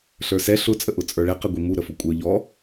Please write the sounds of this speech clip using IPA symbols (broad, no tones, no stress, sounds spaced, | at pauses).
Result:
ɬ ə˞ s ɛ ɬ ʊ t͡sʼ ə ʔ ʊ t͡sʼ ə˞ ɭ ɛ q ɛ ɡʷ i m u ɾ ə f ʊ kʷʼ ə˞ ʎ ɔ